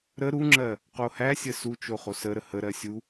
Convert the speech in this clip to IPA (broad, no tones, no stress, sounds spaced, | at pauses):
ɾ ə ɾ u ŋ͡ǁ ɜ | q o h æ sʲ ə s u t͡ʃ o χ o s ə ɾ ə h ə ɾ ɜ sʲ u